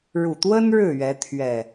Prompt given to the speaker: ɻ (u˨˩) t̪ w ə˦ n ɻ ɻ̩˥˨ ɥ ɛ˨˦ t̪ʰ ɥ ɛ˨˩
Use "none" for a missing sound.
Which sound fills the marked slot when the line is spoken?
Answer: u˨˩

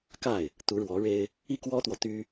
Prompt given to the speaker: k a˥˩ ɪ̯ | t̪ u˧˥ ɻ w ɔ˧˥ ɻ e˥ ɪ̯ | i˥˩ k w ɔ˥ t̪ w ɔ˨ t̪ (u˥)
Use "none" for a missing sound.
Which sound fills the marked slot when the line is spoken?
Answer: y˥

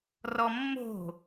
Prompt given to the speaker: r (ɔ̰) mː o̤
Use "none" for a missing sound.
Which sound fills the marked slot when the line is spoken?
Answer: ɔ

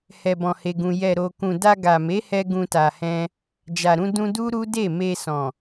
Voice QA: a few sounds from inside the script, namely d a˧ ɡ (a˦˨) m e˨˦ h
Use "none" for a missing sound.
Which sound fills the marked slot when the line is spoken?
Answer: a˨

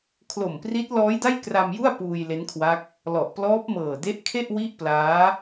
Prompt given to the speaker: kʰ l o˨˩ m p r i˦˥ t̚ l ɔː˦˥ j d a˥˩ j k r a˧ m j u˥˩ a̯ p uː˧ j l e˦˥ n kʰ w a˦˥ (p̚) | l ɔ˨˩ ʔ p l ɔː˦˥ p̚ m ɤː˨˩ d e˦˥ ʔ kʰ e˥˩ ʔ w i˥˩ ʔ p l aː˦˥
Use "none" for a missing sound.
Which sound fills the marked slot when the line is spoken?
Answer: k̚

